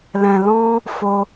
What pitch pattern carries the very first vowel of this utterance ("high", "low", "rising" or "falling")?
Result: low